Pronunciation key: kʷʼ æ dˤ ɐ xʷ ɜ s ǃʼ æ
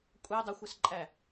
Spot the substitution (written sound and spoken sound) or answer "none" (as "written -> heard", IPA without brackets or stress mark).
none